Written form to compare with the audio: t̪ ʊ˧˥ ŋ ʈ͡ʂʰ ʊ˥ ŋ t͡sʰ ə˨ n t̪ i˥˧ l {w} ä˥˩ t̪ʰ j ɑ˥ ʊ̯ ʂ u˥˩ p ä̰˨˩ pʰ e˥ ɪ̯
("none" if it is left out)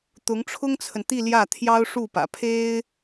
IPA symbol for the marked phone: j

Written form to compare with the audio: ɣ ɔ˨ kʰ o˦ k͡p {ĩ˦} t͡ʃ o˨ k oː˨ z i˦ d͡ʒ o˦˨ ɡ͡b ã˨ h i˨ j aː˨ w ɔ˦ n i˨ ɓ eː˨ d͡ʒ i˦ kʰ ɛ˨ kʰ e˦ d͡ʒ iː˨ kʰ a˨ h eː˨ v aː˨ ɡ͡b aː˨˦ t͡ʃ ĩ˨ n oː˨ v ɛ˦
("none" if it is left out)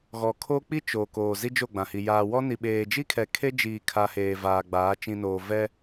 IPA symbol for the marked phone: i˦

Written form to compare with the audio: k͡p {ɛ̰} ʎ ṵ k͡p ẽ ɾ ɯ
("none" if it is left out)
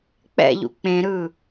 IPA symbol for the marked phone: ɛ̰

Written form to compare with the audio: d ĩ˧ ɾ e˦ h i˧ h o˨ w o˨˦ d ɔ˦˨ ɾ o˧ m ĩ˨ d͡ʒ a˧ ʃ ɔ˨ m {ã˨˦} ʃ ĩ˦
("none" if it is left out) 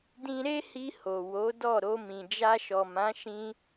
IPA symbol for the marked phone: ã˨˦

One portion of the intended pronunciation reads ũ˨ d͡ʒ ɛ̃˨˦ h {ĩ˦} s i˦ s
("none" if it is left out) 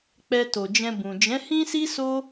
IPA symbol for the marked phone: ĩ˦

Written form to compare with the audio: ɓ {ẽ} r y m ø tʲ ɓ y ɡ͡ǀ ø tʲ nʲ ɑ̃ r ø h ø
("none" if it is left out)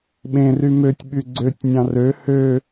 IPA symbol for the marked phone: ẽ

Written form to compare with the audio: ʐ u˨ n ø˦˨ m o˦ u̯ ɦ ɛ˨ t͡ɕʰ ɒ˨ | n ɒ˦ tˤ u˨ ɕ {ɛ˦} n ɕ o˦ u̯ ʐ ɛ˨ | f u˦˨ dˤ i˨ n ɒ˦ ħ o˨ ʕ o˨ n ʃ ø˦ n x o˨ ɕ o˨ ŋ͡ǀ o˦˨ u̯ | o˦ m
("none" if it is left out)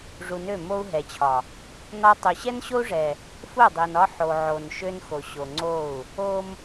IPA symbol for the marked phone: ɛ˦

